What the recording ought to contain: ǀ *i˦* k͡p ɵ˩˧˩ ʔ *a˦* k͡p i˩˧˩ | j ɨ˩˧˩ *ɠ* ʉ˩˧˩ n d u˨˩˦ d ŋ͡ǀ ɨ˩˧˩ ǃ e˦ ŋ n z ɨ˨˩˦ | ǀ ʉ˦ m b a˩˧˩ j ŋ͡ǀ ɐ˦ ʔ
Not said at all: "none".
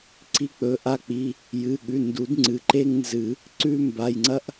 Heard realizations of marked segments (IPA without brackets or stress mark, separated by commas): i˦, a˦, ɠ